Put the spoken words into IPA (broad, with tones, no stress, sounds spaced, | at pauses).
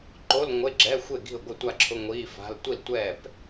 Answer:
ǃ o˧˥˧ l ŋʷ e˧˥˧ ɡ͡ǁ ɛ˧˥˧ xʷ e˥˩ ɡ i̤˥˩ ʊ̯ ɡʷ ɪ˥˩ tʷ a˥˩ ǁʰ ʊ˧˥˧ ŋʷ iː˧˥˧ f a̤˧˥˧ l tʷ i˥˩ l tʷ ɛː˥˩ p